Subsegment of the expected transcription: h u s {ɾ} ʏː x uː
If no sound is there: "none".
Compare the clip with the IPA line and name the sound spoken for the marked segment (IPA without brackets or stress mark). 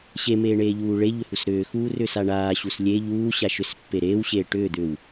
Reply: ɾ